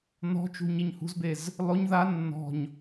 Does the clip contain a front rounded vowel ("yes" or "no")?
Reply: no